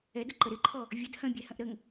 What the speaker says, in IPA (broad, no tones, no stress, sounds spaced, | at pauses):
ɛ d ʊ ǃ ə ɾ ɪ ǃʰ ɔ | vʲ ə d h ə̃ bʲ ɛ h ə̃ ʔ ɾ ə ŋ